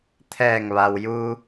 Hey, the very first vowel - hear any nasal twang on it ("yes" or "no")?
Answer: no